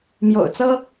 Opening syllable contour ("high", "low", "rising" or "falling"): low